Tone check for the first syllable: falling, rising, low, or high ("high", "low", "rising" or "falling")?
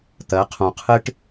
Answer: rising